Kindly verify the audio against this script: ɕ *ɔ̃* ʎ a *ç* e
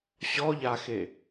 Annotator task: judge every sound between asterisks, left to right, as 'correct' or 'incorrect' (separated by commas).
incorrect, incorrect